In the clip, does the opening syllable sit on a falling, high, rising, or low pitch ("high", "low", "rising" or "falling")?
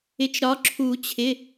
rising